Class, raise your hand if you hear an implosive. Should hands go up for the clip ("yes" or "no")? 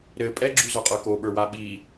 yes